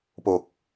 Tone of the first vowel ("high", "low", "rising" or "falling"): low